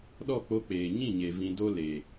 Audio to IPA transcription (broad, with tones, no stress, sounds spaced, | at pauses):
ɗ ɔ˦˨ k͡p o˧ k͡p eː˨ ɲ ĩ˦˨ ɲ e˨ v ĩ˧ d o˦ l e˨